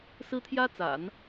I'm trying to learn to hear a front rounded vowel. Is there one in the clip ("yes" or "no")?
no